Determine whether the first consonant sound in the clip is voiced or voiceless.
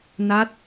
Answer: voiced